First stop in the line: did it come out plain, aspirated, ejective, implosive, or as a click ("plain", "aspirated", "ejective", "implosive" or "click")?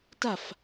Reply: plain